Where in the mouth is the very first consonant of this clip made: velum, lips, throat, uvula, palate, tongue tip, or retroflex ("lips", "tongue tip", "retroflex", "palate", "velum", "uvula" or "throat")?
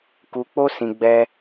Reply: velum